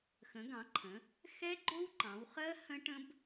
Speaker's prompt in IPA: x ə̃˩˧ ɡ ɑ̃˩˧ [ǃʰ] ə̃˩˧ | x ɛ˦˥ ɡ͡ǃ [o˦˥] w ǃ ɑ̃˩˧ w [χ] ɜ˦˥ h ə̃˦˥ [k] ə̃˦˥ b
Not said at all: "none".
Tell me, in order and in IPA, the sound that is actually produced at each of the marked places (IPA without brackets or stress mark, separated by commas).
ǃʰ, o˦˥, χ, ʈ